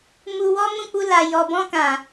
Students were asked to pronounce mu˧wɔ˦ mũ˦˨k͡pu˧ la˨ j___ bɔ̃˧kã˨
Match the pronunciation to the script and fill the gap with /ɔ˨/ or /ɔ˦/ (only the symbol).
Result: ɔ˨